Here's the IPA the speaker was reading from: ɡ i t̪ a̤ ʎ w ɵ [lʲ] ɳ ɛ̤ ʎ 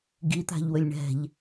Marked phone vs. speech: correct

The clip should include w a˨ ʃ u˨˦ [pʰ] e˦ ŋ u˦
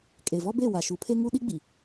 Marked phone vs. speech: correct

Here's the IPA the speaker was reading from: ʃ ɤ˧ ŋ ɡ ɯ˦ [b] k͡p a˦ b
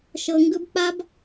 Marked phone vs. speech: correct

